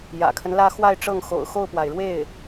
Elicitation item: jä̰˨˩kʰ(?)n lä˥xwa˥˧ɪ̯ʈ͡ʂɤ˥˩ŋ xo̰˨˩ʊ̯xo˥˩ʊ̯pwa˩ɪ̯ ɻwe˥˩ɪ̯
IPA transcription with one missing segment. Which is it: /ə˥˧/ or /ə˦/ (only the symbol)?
ə˦